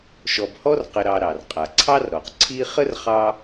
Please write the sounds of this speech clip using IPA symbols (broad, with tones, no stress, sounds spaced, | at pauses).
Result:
ʃ ɔ˨ b h ɔ˦ r q ə˨ ɾ ɑ˨ ɾ ɑ˩ r qʼ a˩ ǀʰ ɑ˥ r ɾ ɔ˩ q ǀʰ i˦ χ ə˥ r χ ɑ˦